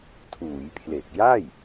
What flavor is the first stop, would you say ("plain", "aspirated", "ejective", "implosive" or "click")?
aspirated